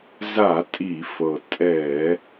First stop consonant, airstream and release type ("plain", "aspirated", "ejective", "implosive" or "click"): ejective